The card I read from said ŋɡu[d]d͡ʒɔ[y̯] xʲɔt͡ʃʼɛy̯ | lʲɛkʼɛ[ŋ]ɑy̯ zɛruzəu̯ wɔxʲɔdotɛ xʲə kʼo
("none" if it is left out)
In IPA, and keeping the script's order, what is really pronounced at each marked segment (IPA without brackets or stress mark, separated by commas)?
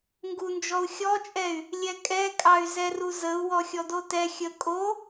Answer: n, u̯, kʼ